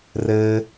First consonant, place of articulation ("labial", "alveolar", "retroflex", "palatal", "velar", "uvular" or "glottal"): alveolar